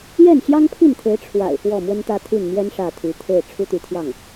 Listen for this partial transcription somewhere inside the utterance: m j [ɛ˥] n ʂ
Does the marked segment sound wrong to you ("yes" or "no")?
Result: no